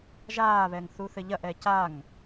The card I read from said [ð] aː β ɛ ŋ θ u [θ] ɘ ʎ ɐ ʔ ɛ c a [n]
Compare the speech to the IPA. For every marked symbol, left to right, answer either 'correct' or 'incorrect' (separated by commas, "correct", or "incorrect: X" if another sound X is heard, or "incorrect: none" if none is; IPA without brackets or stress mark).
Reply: incorrect: ʒ, correct, incorrect: ŋ